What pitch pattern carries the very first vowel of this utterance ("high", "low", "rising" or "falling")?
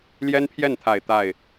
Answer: high